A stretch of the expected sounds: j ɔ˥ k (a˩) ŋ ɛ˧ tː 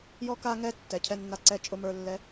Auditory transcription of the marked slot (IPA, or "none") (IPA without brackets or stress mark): a˧